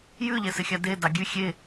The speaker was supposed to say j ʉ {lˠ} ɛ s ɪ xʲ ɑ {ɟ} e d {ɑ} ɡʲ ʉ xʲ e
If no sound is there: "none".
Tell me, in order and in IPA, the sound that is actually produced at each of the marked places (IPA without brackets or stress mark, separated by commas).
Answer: ʎ, d, ɑ